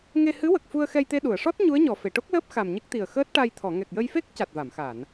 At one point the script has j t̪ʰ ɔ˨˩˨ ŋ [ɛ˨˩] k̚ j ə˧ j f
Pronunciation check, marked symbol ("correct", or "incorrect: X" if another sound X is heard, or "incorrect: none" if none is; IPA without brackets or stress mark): correct